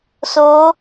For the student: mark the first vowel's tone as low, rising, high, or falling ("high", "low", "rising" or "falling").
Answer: rising